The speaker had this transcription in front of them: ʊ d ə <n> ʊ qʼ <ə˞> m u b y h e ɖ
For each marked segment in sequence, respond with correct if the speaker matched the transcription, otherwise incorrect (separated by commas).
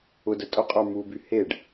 incorrect, correct